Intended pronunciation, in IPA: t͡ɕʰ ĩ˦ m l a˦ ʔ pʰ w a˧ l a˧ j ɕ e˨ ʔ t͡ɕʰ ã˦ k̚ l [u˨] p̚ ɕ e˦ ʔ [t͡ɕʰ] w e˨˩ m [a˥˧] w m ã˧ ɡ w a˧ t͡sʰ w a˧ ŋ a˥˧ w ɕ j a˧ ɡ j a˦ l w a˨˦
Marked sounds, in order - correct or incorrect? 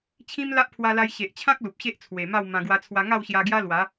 correct, incorrect: t͡sʰ, correct

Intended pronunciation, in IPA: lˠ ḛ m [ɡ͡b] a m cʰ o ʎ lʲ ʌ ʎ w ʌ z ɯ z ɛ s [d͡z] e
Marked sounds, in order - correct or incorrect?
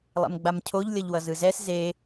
correct, incorrect: z

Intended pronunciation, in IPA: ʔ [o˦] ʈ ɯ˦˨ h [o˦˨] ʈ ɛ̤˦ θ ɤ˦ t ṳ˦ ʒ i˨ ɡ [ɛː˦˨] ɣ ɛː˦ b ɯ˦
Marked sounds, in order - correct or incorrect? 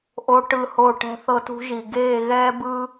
correct, correct, incorrect: eː˦˨

